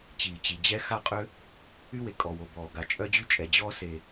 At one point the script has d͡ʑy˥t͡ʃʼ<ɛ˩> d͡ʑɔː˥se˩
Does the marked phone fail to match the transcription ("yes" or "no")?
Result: no